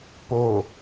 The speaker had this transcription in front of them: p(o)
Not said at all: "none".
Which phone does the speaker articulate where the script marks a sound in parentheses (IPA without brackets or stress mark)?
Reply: o